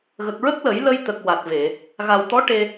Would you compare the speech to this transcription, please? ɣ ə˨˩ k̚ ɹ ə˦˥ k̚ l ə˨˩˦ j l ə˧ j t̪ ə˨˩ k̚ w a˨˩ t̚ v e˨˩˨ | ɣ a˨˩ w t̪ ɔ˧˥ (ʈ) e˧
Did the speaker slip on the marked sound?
no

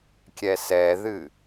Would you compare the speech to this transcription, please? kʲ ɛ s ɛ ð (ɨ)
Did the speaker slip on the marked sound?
no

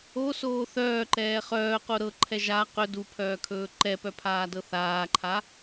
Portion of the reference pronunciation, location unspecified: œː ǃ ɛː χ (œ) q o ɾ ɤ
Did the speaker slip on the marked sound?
yes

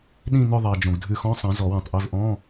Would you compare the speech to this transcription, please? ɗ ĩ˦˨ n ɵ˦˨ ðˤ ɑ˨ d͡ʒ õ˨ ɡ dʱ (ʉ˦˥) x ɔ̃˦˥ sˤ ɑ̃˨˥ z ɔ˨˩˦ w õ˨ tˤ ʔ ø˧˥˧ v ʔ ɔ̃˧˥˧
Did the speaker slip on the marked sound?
yes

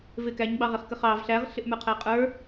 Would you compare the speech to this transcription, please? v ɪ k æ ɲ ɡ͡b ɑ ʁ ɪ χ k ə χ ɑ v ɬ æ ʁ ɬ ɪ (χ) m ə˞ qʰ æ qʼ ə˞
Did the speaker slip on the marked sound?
yes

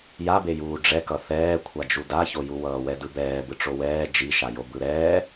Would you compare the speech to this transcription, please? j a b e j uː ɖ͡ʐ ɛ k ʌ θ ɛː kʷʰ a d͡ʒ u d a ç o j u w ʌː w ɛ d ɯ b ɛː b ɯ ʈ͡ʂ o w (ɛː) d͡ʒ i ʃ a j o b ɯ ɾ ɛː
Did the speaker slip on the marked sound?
no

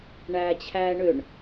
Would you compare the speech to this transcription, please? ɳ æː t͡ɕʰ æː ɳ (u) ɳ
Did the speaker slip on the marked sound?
yes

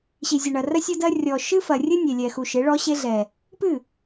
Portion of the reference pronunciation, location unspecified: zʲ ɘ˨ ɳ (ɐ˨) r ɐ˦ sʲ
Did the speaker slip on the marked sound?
no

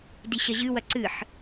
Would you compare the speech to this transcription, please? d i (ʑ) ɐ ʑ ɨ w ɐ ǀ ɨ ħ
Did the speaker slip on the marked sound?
yes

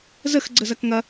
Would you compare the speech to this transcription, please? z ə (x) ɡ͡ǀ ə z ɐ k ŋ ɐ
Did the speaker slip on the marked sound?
no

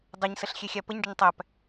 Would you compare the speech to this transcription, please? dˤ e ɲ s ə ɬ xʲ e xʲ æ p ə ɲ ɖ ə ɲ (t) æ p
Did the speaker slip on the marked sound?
yes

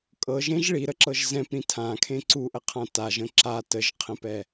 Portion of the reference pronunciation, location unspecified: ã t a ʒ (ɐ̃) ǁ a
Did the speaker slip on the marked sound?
yes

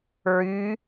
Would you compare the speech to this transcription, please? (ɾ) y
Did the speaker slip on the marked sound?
yes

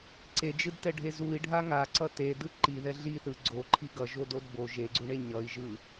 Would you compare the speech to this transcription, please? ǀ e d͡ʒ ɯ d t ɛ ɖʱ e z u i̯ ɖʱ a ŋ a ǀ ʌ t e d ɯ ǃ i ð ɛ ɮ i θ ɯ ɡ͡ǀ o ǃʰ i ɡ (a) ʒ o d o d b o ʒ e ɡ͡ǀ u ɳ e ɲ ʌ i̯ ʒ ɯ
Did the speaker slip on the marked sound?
yes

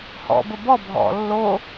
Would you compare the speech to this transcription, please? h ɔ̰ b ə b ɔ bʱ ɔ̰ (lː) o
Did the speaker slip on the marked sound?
no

